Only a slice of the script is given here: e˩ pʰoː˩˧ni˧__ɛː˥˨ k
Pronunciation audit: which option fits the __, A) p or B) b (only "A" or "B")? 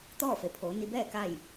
B